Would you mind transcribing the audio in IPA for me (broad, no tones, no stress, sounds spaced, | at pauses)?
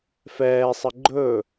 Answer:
f ɛː sˤ ə ɡ͡ǃ ɵ